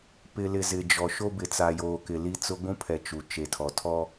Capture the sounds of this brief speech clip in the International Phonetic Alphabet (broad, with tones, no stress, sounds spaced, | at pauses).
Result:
p ɪ˨ l ɪ˨ z ɪ˨ d͡ʒ ɔ˨ ʃ o˦ b ɪ˨ t͡s a˨ j oː˨ k ɪ˨ l i˦ t͡s ʊ˦ ɡʷ ũ˦ pʰ ɛ˨ t͡ʃ u˨ t͡ʃ e˨ tʰ ɔ˨ tʰ ɔ˦